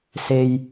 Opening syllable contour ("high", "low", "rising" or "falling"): low